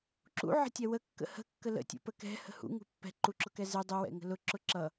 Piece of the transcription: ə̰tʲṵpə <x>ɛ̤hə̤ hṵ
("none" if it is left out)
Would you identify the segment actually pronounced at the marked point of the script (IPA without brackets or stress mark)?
k